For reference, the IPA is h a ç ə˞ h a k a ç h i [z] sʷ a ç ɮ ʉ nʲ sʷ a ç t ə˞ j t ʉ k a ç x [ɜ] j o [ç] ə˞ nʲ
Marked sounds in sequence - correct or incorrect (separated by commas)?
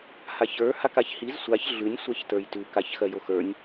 correct, correct, incorrect